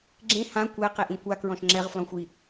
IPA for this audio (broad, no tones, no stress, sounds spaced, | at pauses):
ɡ͡ǁ ẽ h ã kʷ ɛ q e ʔ ĩ kʷ a k ɹ ɔ̃ ʃ ŋ͡ǁ ɛ ʁ f l ɔ̃ xʷ i